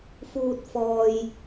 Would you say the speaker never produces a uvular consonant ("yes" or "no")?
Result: yes